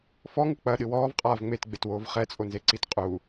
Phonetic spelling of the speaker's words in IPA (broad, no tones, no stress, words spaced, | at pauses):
fɔŋɨ k͡pɐɗɨ wɔːvqʼaːv ŋ͡metɡ͡betwoːv χɛt͡sʼonzeǀit qʼu